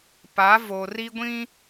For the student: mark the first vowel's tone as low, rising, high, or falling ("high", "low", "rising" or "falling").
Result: rising